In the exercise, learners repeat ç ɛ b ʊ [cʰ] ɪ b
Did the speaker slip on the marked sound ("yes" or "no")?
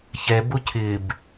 no